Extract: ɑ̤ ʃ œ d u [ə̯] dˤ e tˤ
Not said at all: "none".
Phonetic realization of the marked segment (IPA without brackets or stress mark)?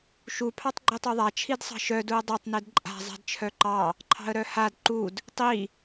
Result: ə̯